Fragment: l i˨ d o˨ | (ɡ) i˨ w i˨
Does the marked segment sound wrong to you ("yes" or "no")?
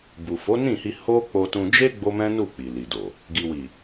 no